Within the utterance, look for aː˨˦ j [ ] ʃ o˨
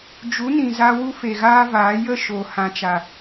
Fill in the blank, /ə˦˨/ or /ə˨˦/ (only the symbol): ə˦˨